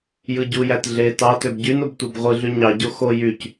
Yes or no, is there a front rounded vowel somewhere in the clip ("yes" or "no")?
yes